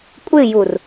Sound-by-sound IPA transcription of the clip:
kʷʼ ɪ j u r

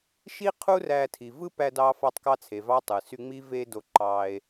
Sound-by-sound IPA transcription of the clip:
ʃ i˦ qʰ u˦ r æ˧ tʰ i˨ v ɯ˦ p æ˧ d ɑ˧ f ɑ˧ tˤ k ɑ˧ t͡sʰ e˨ v ɑ˧ tˤ ɯ˨ s y˧ ŋ͡m i˦ v e˦ d o˧ ǃ ɑ˧ e̯

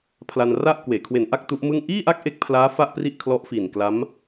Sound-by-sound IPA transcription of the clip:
pʰ l a˧ n r a˥˩ ʔ k w eː˩˦ kʰ w e˨˩ n ʔ a˥˩ k̚ t u˦˥ ʔ m ɯ˥˩ ŋ ʔ iː˥˩ ʔ a˥˩ k̚ ʔ e˦˥ k̚ pʰ l aː˦˥ f a˥˩ ʔ p r i˥˩ ʔ kʰ l ɔ˦˥ ʔ f iː˨˩ n k l a˦˥ m

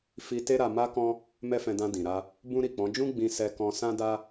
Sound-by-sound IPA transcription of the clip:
f i˧ t e˦ ɾ a˧ m a˦ k ɔ̃˦ | m ɛ˦ f ɛ̃˧ d ã˧ d ĩ˨ ɾ a˧ | b ũ˦ ɾ i˦˨ k͡p ɔ̃˨˦ d͡ʒ ũ˦ ɡ͡b ĩ˧ s ɛ˧ k ɔ̃˧ s ã˦ d a˦

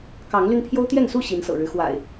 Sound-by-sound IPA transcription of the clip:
k ɑ˨˦ ŋ l y˧ n pʰ j o˦ ʊ̯ t̪ j ɛ˥˨ n s u˥˨ ɕ i˨˦ n s ɤ̰˨˩ ɻ ɻ̩˦ x w a̰˨˩ ɪ̯

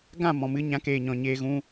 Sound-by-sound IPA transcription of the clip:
ɡ ã˦˨ m ɔ̃˨ m ɨ˧ ɲ ã˨˦ k eː˨ ɲ ɔ̃˨ ɲ eː˧ ɣ ũ˦

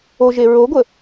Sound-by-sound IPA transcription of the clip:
o ʒ e ɹ o ɡʷ ə

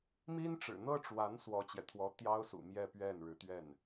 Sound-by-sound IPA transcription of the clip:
m i˥ n ʈ͡ʂ ɻ̩˨˩ n̪ ɤ˥ ʈ͡ʂ w a˧˥ n s w ɔ˥ t͡ɕ j ɛ˨ t̪ʰ w ɔ˥ t̪ j ɑ˥ ʊ̯ s ṵ˨˩ m j ɛ˥˧ p ɥ ɛ˥˩ n ɻ ɻ̩˧˥ t̪ ɥ ɛ˥˩ n

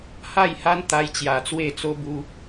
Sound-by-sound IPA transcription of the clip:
h a˥˧ j h a˦ n t̪ a˧ j t͡ɕ j a˨˩ t͡s w e˥˧ t͡s o˦ b u˦

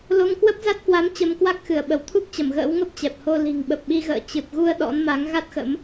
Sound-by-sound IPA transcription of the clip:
l o˧ ŋ k w ə˦˥ p̚ z a˦˥ t̚ k w a˨˦ m t͡ɕ ə˧ m k w a˦˥ k̚ x ɨ˧˩ ə̯ ɓ ə˧˩ w t̪ʰ u˦˥ k̚ t͡ɕ ə˧˩ m ɣ ə̰ː˧˥ w ŋ ə˦˥ p̚ t͡ɕ ɛ˨˩ p̚ h o˧ l i̤˨˩ ŋ ɓ ə˨˩ p̚ ɓ i˧ ɣ ə̰ː˧˨ t͡ɕ ɨ˨˩ p̚ ɣ u˧ ə̯ ɗ ɔ̰˧˥ n m a˨˦ ŋ ɣ a˦˥ t̚ x ə̰˧˥ m

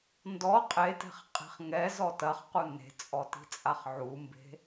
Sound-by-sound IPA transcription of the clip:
n d ɔ qʼ e t ɛ̤ χ qʼ e̤ χ ŋ ɛ z ɔ t ɐ χ q u n e̤ t͡sʼ ɔ t i̤ t͡sʼ a χ ʕ u m b e̤

